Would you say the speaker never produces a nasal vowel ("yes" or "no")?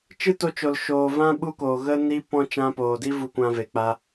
no